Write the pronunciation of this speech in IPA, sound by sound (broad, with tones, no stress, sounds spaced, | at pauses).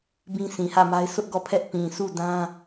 b ĩ˦ sʰ ĩ˨ h ä˦˨ m a˦ ɪ̯ sʰ ʊ˦ ʔ ɡ ɔ˦˨ pʰ ɛ˦ ʔ p ĩ˨ sʰ u˦˨ d ã˦